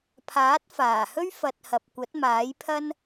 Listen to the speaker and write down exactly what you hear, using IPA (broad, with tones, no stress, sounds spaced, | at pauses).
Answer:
pʰ aː˨˥ t̚ f aː˨˩ h ɵ˥ ɥ f ɐ˧ t̚ h ɐ˨ p̚ kʷ ɐ˨˥ t̚ m aː˨˥ j pʰ ɐ˥ n